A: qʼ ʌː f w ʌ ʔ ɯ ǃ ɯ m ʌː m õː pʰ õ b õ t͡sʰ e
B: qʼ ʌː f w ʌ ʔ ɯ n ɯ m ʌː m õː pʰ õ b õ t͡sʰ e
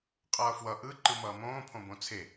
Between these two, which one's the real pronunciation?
A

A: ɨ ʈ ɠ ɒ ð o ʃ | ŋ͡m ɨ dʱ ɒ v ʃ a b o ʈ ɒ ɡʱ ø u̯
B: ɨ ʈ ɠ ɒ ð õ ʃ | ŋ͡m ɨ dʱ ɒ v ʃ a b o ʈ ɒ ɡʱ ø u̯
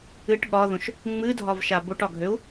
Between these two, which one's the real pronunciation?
B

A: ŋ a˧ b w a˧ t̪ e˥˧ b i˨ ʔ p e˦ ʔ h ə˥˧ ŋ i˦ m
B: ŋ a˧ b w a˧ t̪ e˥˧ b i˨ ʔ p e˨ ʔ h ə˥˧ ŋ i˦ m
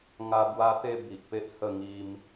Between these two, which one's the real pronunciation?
A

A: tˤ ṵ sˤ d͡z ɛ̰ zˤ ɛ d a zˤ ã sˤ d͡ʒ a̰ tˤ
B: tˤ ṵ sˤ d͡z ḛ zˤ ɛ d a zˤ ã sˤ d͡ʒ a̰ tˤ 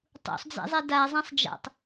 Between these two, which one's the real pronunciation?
A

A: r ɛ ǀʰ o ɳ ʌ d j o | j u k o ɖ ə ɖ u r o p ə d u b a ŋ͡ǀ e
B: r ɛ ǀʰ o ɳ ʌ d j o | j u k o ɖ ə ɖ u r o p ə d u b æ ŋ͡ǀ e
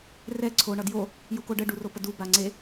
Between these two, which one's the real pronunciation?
A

